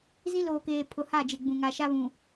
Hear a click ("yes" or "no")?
no